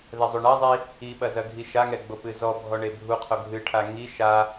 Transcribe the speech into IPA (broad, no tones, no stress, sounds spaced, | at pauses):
ð ɛ zˤ o ɳ ɐ zˤ i | i ɓ ɐ z ɐ ɡʱ i ʃ a ŋ ɛ ɡ͡b o p ɨ z ɔ bʱ ɔ ɳ e bʱ u qʰ o ɡʱ ɨ ʈʰ a ŋ i ʃ a